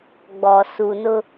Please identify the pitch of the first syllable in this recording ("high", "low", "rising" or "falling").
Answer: low